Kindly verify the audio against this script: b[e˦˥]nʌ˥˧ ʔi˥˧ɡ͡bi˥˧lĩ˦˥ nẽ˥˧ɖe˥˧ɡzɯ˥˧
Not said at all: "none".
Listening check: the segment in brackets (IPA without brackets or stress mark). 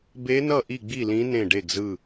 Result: e˦˥